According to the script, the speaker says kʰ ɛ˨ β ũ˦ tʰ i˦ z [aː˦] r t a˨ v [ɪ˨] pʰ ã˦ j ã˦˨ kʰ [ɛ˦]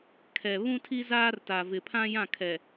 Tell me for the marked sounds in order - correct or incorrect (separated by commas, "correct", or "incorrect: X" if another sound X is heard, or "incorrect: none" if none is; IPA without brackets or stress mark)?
correct, correct, incorrect: ɛ˨